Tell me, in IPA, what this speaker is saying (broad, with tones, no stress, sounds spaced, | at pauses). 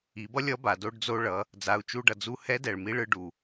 i˩˧ b ʌ˥ lʲ ʌ˧˥ b a˩ d o˧ ɖ d͡z o˧ ɭ ʌ˩˧ | d͡z a˩˧ u̯ t͡ʃ u˧ ɖ ʌ˩ d͡z u˧ h ɛ˧˥ d ɛ˩ ɭ m i˧˥ ɭ ɯ˧ ɖ u˩